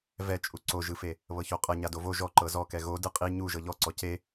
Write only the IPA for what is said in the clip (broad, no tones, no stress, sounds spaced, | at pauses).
v ɛ t͡ʃʼ u ǀ o ʒ ɯ f e | β ɤ ç o qʼ ɤ ɲ a d o v o ʒ ɔ ǃ ɤ z ɔ k ɛ ɣ o d ɯ qʼ i ɲ u ʒ ɤ ʎ ɔ ǀ ɔ c e